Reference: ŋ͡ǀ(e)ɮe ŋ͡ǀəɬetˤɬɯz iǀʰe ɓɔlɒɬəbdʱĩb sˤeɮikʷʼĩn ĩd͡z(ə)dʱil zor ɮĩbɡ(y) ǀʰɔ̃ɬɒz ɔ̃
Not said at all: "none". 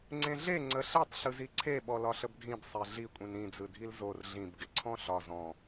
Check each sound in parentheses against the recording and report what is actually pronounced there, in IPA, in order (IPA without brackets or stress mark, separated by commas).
ẽ, ɯ, ɪ